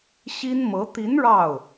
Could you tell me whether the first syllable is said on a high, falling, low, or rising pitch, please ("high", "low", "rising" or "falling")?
high